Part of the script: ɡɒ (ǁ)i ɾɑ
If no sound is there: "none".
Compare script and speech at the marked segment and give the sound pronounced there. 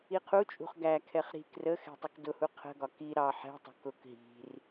k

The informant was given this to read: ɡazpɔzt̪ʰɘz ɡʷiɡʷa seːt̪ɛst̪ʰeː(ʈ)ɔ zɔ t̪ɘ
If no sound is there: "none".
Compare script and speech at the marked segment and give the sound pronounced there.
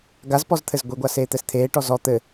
ʈ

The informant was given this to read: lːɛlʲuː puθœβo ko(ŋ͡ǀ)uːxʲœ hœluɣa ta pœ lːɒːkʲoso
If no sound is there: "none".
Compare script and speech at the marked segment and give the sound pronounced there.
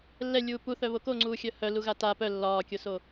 ŋ͡ǀ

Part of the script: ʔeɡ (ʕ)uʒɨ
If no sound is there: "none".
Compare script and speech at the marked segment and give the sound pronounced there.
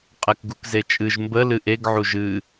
ʕ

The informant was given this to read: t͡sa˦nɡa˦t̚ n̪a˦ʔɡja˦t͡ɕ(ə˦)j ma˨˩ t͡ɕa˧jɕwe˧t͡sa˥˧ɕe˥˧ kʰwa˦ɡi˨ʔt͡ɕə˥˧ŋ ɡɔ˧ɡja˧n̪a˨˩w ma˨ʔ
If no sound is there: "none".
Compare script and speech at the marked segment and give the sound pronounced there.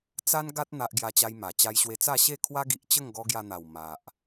a˦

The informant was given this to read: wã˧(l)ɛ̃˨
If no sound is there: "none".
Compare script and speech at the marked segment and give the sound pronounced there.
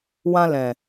l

